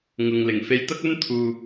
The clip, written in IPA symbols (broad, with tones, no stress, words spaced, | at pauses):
ŋʊ˨ŋlɪ˨˩ŋ fe˧jt̪ɐ˥k̚ɵ˥n t̪ʰuː˨